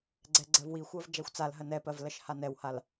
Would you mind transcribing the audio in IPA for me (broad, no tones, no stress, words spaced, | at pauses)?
ɡ͡ǀɛɡ͡ǀɜvwixʷɜv d͡ʒaxʷt͡salɦɜ nɛpɜv lɜʃhanɛwhal